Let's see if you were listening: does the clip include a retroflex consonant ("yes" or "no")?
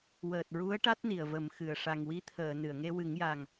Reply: yes